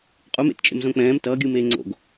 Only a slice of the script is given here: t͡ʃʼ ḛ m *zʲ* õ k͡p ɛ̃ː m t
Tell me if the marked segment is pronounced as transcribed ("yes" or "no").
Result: no